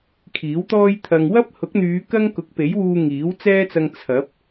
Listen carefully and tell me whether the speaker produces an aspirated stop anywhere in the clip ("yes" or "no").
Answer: yes